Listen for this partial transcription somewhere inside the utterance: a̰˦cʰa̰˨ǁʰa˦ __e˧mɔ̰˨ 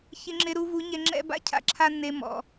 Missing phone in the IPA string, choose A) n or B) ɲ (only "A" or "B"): A